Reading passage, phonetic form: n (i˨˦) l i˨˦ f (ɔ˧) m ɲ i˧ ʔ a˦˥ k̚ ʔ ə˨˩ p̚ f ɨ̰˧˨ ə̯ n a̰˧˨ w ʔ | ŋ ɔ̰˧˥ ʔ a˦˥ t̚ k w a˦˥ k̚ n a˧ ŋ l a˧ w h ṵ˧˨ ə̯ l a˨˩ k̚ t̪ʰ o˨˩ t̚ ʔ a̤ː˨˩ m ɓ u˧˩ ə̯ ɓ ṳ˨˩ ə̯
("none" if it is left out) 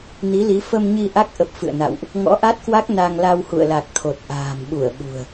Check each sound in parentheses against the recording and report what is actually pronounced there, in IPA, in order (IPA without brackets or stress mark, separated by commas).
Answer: i˨˦, ə˧